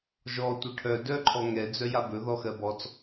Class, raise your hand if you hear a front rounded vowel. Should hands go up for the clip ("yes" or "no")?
yes